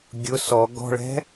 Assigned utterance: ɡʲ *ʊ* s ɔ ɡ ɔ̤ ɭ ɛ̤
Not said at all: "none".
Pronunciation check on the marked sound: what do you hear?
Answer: ʊ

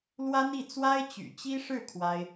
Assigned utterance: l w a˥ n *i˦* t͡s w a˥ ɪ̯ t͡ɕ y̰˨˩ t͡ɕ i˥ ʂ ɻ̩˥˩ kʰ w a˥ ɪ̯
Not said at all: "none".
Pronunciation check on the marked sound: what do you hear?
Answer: i˥˩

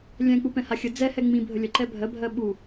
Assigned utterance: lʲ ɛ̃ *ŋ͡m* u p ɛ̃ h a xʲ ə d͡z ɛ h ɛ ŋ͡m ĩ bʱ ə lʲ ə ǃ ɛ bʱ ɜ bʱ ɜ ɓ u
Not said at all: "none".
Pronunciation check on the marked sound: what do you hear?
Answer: k͡p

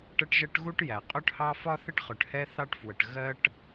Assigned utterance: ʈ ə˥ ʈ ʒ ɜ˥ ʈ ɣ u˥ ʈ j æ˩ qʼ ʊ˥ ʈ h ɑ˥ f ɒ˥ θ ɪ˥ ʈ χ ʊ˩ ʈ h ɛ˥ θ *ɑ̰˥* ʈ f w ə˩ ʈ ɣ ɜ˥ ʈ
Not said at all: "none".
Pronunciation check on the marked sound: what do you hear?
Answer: ɑ˥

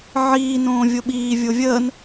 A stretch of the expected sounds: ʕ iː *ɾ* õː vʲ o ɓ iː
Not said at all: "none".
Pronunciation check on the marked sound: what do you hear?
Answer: n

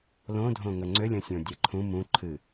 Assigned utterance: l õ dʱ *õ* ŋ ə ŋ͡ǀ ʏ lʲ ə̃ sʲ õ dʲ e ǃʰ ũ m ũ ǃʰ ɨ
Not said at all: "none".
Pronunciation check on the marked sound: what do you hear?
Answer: õ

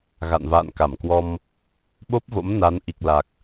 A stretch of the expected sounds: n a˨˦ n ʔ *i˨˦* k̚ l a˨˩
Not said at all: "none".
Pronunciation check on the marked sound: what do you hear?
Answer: i˨˩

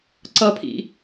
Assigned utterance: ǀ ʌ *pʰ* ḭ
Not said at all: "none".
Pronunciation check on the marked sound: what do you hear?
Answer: pʰ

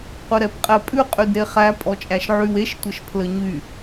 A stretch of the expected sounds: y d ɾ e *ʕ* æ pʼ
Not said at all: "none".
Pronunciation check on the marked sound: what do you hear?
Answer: χ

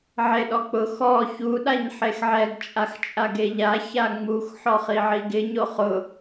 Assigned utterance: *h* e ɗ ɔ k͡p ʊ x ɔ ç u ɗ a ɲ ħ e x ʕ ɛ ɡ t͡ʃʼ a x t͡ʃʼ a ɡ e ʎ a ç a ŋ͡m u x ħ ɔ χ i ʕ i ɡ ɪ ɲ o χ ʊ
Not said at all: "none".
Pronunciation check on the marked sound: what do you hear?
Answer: ʕ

